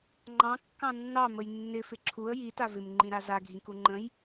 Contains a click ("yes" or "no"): yes